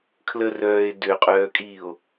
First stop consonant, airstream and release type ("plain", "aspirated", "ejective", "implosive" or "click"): aspirated